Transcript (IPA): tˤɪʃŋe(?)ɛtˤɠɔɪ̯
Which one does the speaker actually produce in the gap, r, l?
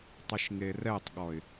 r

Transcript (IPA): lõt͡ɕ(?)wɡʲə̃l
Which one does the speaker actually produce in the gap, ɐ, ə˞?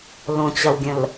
ɐ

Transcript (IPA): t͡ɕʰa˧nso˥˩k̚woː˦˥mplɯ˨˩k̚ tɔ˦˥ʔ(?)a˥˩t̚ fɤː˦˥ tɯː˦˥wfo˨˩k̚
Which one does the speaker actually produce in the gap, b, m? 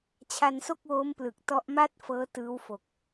m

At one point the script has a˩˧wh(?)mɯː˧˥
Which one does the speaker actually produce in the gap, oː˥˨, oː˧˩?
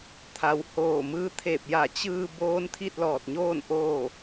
oː˧˩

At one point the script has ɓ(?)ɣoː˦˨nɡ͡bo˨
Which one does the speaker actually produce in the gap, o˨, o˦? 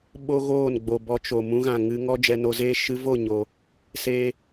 o˦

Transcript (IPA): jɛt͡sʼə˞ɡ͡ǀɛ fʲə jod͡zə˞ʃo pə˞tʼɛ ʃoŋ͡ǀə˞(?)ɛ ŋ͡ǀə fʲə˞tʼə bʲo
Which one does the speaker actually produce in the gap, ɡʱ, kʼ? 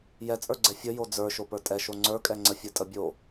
kʼ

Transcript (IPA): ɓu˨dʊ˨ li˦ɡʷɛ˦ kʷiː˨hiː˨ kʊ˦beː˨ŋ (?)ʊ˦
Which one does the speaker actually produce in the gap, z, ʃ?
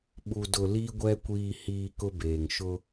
ʃ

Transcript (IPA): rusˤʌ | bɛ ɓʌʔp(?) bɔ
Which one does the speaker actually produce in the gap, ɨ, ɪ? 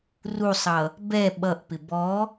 ɪ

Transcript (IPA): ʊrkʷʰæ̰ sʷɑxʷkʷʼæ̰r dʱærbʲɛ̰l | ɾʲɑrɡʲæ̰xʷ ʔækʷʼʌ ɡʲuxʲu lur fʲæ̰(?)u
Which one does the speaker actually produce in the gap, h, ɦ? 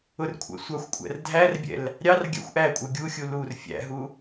ɦ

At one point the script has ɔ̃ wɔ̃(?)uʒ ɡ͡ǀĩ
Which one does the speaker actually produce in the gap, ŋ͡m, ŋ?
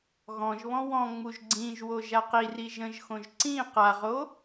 ŋ͡m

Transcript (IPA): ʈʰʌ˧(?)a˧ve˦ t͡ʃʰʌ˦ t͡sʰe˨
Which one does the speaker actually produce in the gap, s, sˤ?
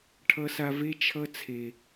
s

